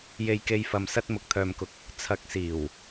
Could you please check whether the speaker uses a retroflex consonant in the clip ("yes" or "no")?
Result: no